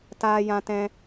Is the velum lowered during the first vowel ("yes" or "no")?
no